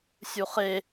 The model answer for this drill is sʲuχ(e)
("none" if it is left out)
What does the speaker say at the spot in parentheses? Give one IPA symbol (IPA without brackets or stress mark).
e